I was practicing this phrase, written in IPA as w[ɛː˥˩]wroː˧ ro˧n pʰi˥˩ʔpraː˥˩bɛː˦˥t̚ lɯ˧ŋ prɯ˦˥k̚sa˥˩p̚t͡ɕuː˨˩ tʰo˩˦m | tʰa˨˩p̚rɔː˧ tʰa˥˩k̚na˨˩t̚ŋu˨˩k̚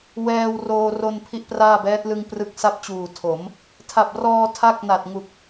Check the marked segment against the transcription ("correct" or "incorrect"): incorrect